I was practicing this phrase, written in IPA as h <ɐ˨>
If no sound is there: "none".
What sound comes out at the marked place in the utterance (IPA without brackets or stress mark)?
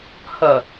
ɐ˨